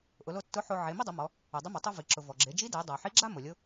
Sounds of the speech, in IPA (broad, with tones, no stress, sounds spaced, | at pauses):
ʔ ʊ˩˧ l o˧ tː ʊ˧˥ ħ o˧ ʕ e˩˧ m i˥ dˤ ʊ˩˧ m ɔ˩˧ | u˩ dˤ ʊ˧˥ m a˩˧ tˤ u˧ v i˩ ǁ ʊ˩ v ɔ˩ ɡ͡ǁ e˩˧ d͡ʒ i˧˥ d e˩˧ dˤ a˩ ħ i˧˥ ɡ͡ǁ a˥ m o˩ lʲ ʊ˧˥